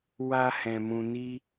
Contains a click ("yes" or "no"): no